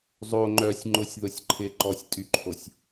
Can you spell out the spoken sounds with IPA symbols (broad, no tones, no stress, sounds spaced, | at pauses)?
zˤ o ŋ͡ǃ œ sʲ ŋ͡ǃ ʊ sʲ ð ʊ sʲ ǃʰ ɪ ǃ ɔ sʲ tʼ y ǃʰ o sʲ